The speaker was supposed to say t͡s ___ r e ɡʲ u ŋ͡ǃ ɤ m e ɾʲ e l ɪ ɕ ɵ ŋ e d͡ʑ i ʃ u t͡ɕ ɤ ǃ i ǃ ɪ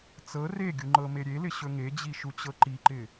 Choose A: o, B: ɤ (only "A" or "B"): B